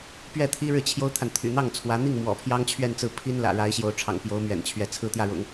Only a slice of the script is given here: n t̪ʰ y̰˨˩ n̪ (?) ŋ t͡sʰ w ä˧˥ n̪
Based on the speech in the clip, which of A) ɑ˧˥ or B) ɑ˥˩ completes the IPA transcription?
B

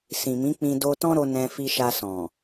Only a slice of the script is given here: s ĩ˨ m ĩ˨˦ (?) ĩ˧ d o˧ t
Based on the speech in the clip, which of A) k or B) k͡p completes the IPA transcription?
B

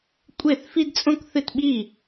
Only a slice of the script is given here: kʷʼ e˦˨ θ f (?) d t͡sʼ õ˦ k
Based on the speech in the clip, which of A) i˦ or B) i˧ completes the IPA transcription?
A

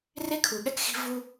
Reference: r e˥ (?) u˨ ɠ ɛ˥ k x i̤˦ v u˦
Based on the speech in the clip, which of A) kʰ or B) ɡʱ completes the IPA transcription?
A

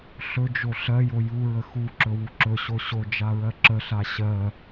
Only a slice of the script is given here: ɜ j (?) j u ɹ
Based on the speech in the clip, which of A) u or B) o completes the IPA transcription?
B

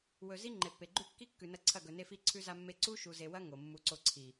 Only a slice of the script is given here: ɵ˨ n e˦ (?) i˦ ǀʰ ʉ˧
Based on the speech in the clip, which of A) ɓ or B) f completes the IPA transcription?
B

